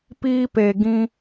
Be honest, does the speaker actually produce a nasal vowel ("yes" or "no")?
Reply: yes